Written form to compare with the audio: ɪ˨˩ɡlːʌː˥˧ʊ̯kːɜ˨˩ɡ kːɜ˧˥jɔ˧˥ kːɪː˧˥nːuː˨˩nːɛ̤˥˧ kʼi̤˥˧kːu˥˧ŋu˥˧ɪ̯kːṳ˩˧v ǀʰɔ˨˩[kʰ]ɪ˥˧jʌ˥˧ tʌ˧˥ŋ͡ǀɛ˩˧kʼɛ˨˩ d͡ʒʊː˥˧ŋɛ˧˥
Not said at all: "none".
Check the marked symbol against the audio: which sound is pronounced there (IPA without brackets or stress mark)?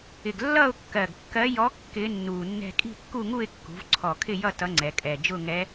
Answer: kʰ